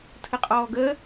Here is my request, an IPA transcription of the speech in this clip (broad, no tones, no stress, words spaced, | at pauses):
tʰəqʼɔːɡəː